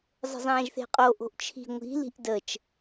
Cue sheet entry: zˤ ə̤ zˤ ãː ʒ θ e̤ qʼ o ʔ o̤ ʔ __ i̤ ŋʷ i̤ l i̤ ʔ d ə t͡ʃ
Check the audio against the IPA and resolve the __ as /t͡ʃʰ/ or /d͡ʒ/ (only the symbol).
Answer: t͡ʃʰ